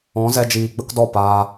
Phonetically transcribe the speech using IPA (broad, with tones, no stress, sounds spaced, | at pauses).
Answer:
ɔ̃˨˦ z ɛ˧ d͡ʒ iː˨ ɡ͡b ə˦ k d ɔ˦˨ p aː˧